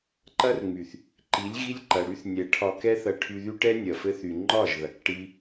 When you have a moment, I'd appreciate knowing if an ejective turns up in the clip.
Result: no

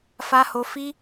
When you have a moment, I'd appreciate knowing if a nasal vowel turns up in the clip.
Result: no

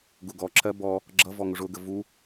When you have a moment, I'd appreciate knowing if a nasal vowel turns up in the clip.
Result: no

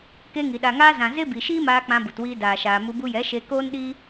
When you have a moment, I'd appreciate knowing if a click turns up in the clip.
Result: no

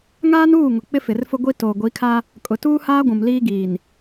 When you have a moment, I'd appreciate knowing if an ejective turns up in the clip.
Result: yes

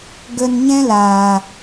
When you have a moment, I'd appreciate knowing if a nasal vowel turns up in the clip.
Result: yes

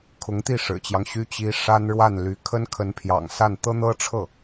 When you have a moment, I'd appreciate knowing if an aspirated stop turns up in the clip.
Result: yes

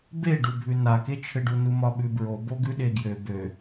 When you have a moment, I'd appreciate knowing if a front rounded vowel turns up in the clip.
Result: yes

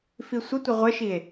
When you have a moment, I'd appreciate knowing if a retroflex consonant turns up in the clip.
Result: no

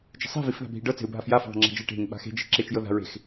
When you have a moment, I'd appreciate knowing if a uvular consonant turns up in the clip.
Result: no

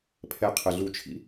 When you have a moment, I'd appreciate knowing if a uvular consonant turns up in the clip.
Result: yes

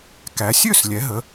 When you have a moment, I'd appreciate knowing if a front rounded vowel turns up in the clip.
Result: yes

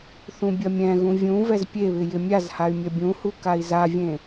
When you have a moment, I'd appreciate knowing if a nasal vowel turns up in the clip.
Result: yes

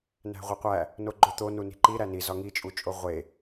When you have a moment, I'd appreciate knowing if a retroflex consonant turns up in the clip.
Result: no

